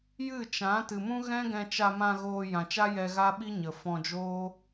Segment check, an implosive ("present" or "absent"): present